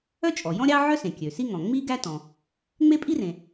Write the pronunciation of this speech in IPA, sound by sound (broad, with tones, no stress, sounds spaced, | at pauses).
œ˥ t͡ʃʼ ɔ˩ j ɔ̃˥ ɾʲ ɑ˥ ʕ œ˥ s ẽ˩ kʲ ø˩ s i˥ ŋ ɔ̃˩ ŋ͡m i˥ ɡ æ˥ t ɔ̃˩ | ŋ͡m e˥ pʼ i˥ r ẽ˩